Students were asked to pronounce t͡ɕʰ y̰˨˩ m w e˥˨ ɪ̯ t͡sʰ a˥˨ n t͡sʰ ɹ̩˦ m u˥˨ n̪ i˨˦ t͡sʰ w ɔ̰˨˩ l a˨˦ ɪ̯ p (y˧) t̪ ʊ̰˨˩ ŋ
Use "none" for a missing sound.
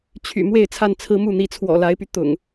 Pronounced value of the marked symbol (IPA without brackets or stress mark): y˧